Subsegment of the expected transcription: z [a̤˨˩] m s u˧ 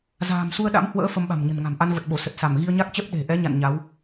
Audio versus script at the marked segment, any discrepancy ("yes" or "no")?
yes